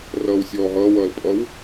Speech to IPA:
r ʌː w sʲ ɔː ɦ ʌː w ʌː l pʼ ʌ w

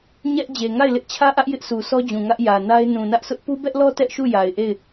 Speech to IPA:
ɲ ɛ˦ ʔ d͡ʑ e˨ ŋ a˦˨ ɪ̯ l ɪ˦ ʔ t͡ɕʰ ä˦ ʔ ä˦ ʔ j ɪ˦ ʔ sʰ u˨ s ɔ˦ d͡ʑ ũ˨ ŋ ä˦ ʔ j ä˨ n a˦ ɪ̯ n ũ˨ n ä˦ ʔ sʰ ʊ˦ ʔ p u˦ b ɛ˦ ʔ l ɔ˦ t ɛ˦ ʔ ʃ u˦˨ j a˨ ɪ̯ ʔ e˦˨ ɪ̯

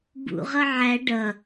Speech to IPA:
b ṵ ʁ ʌ ʕ æ ɖ ʌ

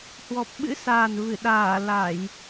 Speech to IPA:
h w ɔ˨˩ p̚ ɓ ɨ̰˧˥ s aː˨˩ n v ɨ˧˩ ɗ aː˧˩ l a˧˩˨ j

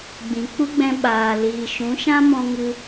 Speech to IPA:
ɡ͡b ĩ˨ k͡p u˦ ɡ͡b ɛ̃˧ ɓ aː˨ l iː˨ ʃ ũ˨˦ ʃ ã˦ m ɔ̃˧ ŋ ɨ˧

